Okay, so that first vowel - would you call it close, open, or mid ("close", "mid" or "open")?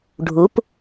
close